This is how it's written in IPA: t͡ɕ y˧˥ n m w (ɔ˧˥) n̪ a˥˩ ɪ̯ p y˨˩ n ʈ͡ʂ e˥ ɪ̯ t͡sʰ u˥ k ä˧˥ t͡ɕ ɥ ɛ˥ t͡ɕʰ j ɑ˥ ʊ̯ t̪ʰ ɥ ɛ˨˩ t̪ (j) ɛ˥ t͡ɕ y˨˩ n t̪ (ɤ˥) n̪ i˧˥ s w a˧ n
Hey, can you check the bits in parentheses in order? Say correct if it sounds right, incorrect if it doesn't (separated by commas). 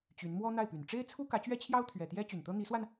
incorrect, correct, correct